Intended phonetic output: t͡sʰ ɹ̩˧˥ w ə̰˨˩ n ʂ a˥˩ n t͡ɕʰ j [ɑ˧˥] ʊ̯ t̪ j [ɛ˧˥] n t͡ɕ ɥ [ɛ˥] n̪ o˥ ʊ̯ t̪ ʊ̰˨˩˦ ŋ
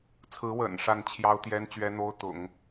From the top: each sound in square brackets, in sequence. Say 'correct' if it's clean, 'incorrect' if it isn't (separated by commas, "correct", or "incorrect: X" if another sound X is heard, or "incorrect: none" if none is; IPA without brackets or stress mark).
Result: incorrect: ɑ˥, incorrect: ɛ˥, correct